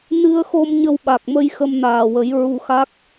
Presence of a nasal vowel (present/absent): absent